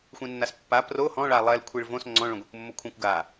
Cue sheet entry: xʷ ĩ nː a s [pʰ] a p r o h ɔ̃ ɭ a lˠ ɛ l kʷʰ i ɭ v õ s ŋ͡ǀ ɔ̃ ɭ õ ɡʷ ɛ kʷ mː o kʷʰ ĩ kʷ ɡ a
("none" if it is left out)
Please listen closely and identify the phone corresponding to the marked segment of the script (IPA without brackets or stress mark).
pː